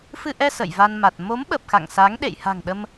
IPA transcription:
f ɨ˧ ʔ ɛ˧ s ə̰˧˨ j v a˧ n m a˨˩ t̚ m o˨˦ m ɓ ə˨˩ p̚ x a̰˧˨ ŋ s a˨˦ ŋ ɗ ḛ˧˨ j h a̤˨˩ ŋ ɗ ə˧ m

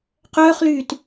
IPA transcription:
q œː χ l yː t

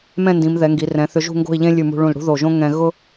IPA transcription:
m ɛ̃˥˧ n d ĩ˩˧ m ð ɛ˩˧ ŋ ɡ i˩˧ r ɛ̃˩˧ θ ʏ˧ ʒ ṳ˥˧ ŋ ɡ o̤˥˧ i̯ ʎ ẽ˥ lʲ ʉ˧˩ m ṳ˧ ɭ ũ˧˩ l ɽ ṳ˥ ð o˧˩ ʒ õ˥ ŋ ɛ̃˧ ɣ ʊ˥

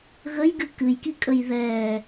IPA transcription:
ɣ ə j ɡ ɨ k ɨ j k i kʼ ə j ð ɛ

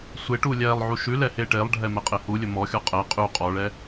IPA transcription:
sʷ e ʈ u lʲ ɛ lˠ ʕ u ʃ ʉ l ɛ h e ʈ e lˠ ɖʱ ɛ m ɛ qʼ e h u lʲ ɵ m ɔ xʲ ɔ qʼ ɛ qʼ ʉ qʼ ɔ ɭ ɛ

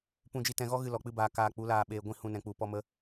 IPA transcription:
p ũ˧ d͡ʒ i˧ t ɛ̃˧ ɣ ɔ˦ ɣ ɨ˧ l ɔ˨ k͡p ɨ˦ b aː˧ k aː˧ k͡p u˨˦ l aː˧ ɓ eː˧ ɡʷ ĩ˧ h ũ˦ n ɛ̃˧ k͡p u˧ p ɔ˧ m ə˧

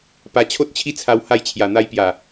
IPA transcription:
p a˧ t͡ɕʰ o˦ t̚ t͡ɕʰ i˦ t͡sʰ a˧ w h a˧ j t͡ɕʰ j a˨˩ n̪ a˧ j p j a˨˩

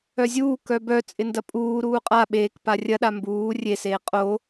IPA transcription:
œ zʲ uː k œ b œ t͡sʼ ɪ n d ɐ pʼ uː ɾ uː qʼ a ɓ eː k p a rʲ ɐ ɗ a m b uː rʲ e s eː qʼ o

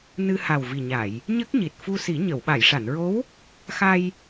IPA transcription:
n ɨ˧ h a˨˩ w v i˨˩ ɲ a˨˩˨ j | ɲ ə˦˥ k̚ ɲ i˨˩ t̚ f u˧ s i˨˩˦ ɲ ə˨˩˨ w ɓ a˨˩˨ j ʂ a˨˩˨ n ɹ o˧˥ w | x a˧ j

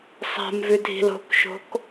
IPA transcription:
sˤ a̤ m v ʉ dʱ i̤ l o̤ k ʃ o̤ k

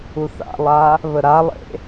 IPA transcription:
u θ a̰ lˠ a | β ə ɾ a lˠ ḛ

